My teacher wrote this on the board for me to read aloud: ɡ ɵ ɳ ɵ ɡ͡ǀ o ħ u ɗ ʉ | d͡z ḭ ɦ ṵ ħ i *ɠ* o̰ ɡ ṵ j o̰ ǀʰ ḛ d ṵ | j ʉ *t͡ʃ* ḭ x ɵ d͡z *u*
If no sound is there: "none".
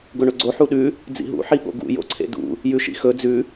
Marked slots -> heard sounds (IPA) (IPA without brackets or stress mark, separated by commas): ɠ, ʃ, ʉ